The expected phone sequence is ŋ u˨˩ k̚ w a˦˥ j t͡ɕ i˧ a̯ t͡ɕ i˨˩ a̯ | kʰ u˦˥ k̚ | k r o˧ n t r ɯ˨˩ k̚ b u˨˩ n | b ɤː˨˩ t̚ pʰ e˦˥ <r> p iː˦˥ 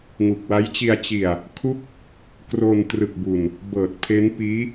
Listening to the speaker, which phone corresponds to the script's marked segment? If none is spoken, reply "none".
n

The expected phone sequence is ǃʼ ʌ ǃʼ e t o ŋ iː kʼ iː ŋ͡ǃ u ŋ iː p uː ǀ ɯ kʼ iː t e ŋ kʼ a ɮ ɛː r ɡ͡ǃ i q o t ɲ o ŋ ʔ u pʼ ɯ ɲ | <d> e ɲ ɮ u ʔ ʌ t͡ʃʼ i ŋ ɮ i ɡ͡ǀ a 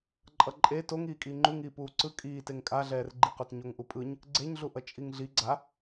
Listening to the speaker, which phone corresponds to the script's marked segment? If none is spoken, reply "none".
ɡ͡ǀ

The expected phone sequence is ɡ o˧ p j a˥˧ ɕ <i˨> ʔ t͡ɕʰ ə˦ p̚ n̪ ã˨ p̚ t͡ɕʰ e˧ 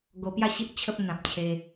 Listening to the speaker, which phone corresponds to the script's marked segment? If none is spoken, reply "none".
i˦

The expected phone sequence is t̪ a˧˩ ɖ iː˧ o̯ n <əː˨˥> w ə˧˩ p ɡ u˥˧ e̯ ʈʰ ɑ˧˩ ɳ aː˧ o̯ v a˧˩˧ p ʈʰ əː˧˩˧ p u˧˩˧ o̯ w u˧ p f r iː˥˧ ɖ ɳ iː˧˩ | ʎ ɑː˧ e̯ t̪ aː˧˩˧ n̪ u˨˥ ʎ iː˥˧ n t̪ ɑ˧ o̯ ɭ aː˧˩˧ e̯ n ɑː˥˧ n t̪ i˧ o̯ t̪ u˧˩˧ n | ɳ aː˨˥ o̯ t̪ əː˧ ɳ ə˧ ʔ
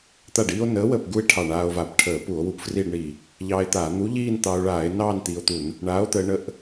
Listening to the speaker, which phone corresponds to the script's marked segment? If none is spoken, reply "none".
əː˨˥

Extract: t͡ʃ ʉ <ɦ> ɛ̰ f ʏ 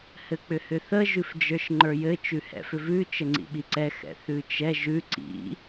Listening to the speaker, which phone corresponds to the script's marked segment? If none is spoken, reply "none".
h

